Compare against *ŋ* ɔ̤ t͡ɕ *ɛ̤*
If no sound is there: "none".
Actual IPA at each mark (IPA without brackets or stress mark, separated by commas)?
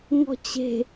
ŋ, e̤